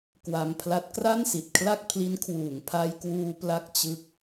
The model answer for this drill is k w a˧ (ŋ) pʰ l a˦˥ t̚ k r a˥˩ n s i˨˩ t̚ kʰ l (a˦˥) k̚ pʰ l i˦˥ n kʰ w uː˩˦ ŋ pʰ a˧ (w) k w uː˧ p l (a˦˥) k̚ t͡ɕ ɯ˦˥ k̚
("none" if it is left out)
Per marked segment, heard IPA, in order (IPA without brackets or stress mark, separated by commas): m, a˥˩, j, a˥˩